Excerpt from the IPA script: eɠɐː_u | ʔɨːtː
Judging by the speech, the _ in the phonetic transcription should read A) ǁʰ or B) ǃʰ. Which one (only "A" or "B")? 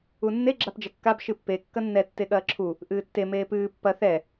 A